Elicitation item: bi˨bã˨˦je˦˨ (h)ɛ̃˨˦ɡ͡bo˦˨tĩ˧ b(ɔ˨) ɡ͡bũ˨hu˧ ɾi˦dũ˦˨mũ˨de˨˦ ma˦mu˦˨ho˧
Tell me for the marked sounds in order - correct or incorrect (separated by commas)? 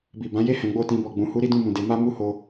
correct, correct